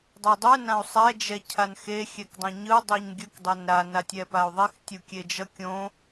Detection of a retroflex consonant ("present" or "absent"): absent